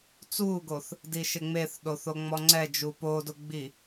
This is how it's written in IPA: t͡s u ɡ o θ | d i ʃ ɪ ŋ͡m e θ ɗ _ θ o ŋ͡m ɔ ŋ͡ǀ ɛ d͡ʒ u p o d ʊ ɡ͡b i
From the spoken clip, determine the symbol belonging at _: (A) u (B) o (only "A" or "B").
B